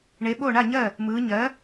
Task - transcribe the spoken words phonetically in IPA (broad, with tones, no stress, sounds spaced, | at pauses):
ɳ e˩˥ ɓ o˥˩ ɳ a˥˩ ɲ ɜ˥˩ | m ɯ˩˧ ɲ ɜ˩˥